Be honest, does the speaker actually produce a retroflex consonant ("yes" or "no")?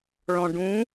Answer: yes